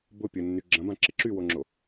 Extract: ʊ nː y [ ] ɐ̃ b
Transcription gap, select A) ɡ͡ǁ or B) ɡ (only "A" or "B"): A